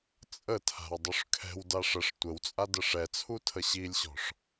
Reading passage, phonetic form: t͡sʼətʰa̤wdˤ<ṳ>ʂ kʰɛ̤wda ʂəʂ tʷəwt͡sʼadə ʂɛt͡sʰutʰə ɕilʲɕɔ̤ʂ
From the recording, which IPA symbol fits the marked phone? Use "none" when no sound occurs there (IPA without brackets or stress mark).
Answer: u